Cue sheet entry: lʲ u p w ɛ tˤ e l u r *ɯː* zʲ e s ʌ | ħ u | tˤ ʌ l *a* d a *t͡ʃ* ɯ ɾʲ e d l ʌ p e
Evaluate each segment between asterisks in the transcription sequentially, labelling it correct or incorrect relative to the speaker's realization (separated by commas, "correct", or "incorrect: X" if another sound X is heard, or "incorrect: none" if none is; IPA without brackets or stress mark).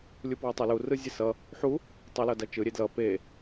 incorrect: ɯ, incorrect: ʌ, correct